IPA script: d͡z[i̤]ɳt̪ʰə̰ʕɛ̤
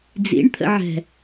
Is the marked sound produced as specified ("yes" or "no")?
no